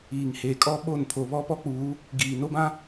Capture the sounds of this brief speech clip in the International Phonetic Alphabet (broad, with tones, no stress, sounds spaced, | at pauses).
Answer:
iː˨ ŋ h eː˨ kʼ ɔ˦ ɓ o˦˨ n pʰ o˨ β ɔ˦ p ɔ˦ k͡p uː˨˦ | ɡ iː˨ n o˦ b ã˦